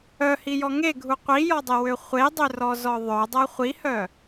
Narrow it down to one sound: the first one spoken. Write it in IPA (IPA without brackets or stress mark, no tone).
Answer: œ